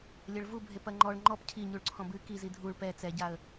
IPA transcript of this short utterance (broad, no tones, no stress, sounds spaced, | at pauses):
lʲ ɐ ɭ v u bʱ e p ɐ ŋ͡ǃ ɔ ɭ ŋ͡ǃ ɔ p cʰ i ɲ u ɭ ǀʰ ɔ̃ b ɨ k i z i dʱ u ɭ p ɛ t͡s ɛ ɟ a ə̯